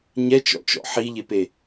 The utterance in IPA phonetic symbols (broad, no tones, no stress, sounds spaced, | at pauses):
ɲ ɛ t͡ʃ ɔ̰ t͡ʃ ɔ̰ ħ i ʎ e p e